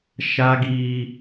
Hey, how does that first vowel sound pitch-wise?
high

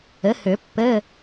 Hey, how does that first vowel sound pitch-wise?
rising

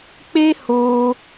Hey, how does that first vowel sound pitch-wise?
high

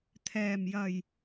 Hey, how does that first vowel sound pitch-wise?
low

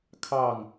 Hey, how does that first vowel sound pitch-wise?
falling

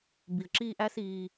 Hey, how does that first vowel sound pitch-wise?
low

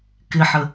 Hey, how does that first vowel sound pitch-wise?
low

